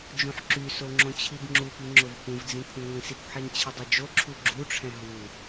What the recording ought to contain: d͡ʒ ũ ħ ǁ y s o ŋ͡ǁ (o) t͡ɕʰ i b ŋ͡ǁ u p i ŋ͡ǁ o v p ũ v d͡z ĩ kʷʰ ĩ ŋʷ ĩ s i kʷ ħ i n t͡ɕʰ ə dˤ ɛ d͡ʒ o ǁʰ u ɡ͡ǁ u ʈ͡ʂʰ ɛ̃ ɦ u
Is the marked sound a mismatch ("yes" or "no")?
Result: yes